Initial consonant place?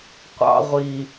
uvular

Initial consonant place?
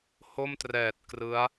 glottal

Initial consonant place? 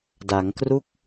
alveolar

